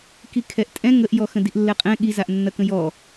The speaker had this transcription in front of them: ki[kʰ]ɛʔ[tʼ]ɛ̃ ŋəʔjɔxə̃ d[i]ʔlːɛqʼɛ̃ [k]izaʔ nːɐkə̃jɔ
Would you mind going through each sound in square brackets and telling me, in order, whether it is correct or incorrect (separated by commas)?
correct, correct, correct, incorrect